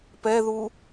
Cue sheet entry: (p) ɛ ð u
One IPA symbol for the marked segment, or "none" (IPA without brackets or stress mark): p